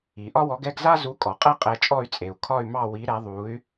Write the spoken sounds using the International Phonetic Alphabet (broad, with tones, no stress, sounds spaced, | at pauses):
i˩ ʔ ɒ˥ w ɔ˨˥ ɡ ɛ˥˧ ɡ z a˥ z u˨˥ kʼ ɔ˩ qʼ ɛ˥ qʼ ɛ˨˥ t͡ʃʼ ɔ˥˧ y̯ t͡sʼ e˩ u̯ kʰ ɒ˥˧ y̯ m ɑ˥˧ w i˨˥ ɾ ɛ˨˥ ðˤ u˨˥ y̯